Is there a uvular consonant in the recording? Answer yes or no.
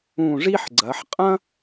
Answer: yes